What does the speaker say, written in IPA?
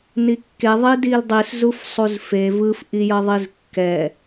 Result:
n i kː e ðˤ i d i l dˤ i s z u f sˤ u z f e v ɯ f ʔ i j ʌ ðˤ i z kː ɛ

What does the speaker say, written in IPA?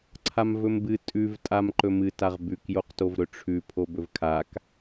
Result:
ǀʰ a m v ɵ m b ɨ tʼ ʉ v tʼ a m ǃ ɵ m ɨ t a ʁ b ʉ k j o q t o v ɾ ɵ ʈ͡ʂʰ ʉ pʰ o b ɵ v kʰ a k

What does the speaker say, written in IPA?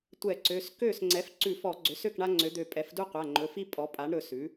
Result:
tʷ ɛ˧˩˧ ǀ ø˩˧˩ s k ø˥˩ s ŋ͡ǀ ɛ˩˥ f ǀ ʉ˧˩˧ f ɔ˧˩˧ ɡ͡ǀ ø˩˥ s ø˥˩ k ɳ a˦ ŋ͡ǀ ø˩˥ d̪ ø˧˩ pʼ ɛ˩˥ f d u˦ qʷ a˩˧˩ ŋ͡ǃ ɵ˩˧˩ f i˦ pʼ ɔ˩˥ pʼ a˩˥ ɳ ɾ ɵ˩˧˩ s ʉ˩˥

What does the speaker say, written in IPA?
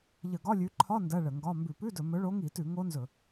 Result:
ʎ ə˧˩˧ ɡ ɒ˧˥˧ lʲ ʉ˨˦ ǃʰ ɒ˧˥˧ n d ɜ˧˥˧ ɭ ə˧˩˧ ŋ ɡ ɒ˧˥˧ m b ʉ˧˩˧ p ʉ˧˥˧ d ɵ˧˩˧ m ɵ˨˦ ɭ o˨˦ ŋ i˧˩˧ t ʉ˧˩˧ ŋ o˦˥ n z ɵ˧˩˧

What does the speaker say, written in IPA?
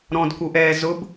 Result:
ɾ ɔ̃ d k u ʔ ɛː z ʊ b

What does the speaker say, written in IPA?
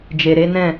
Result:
d͡ʒ e˨ ɾ e˨˦ n ɛ̃˦˨

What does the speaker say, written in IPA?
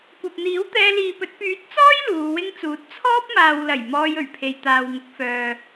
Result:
kʷ ɐ˨ p̚ n̪ iː˨˥ w t̪ ɛː˧ l iː˨ p ɵ˨˥ t̚ p yː˨˥ t̚ t͡s ɔː˥ j l uː˨˧ w ɪ˥ ŋ t͡s uː˨˥ t̚ t͡sʰ ɔː˥ p̚ m aː˨ w l ɐ˨˩ j m ɔː˧ j ɵ˨˩ ɥ pʰ e˨ j t̪ aː˨ w ŋ ʊ˨˥ k̚ f œː˨

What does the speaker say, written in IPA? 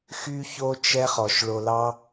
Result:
x y˧ ç o˧ t͡ʃ ɛ˦ χ ɔ˨ ʃ ɭ o˨ l ɑ˦

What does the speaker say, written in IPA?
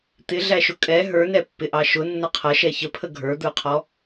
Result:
t̪ ɪ ɮ æ ʃ ʊ kʼ ɛ ɦ ə˞ n ɛ pː ɪ ʔ ɑ ʃ ʊ nː ə qʰ ʌ ʃ ɛ ç ə pʰ ə ɡʱ ə˞ d̪ ə˞ qʰ ɔ

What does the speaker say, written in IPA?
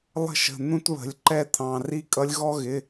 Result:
lˠ ə̤˦ ʃ ə̤˩˧˩ n̪ ũ˦ t β ə̤˩˧˩ lʲ ǃ ɛ˦ t̪ʰ ɑ̃˩˧˩ r i˦ kʼ ʌ˦ lʲ ɣ ɔ˦ ɣ ɪ˩˧˩

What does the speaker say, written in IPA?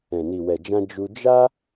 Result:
ɛ̃˨ n i˨ w ɛ˨ d͡ʒ ã˧ d͡ʒ u˧ d͡ʒ a˦

